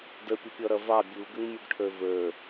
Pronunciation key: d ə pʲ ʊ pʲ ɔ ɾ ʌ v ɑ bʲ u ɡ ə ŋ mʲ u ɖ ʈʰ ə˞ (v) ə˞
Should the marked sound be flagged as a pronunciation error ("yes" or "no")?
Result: no